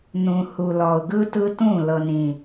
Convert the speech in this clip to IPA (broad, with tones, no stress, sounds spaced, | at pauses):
n ũ˨ h u˨ l ɔ˨ ʊ̯ ɡ ɯ˦ t ɯ˦ t ũ˦˨ l ɤ˨ n ĩ˨